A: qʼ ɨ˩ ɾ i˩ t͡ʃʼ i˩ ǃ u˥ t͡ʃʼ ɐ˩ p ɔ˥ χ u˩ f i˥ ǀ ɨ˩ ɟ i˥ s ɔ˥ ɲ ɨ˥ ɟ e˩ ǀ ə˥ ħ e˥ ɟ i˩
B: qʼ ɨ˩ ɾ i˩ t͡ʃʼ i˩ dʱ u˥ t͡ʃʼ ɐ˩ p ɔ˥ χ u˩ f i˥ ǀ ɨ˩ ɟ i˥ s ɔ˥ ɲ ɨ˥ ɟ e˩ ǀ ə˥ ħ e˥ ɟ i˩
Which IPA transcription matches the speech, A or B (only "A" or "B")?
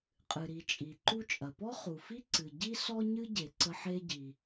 A